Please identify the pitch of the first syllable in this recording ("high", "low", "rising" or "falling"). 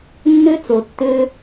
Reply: high